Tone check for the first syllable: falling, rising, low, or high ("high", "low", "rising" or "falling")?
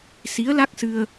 rising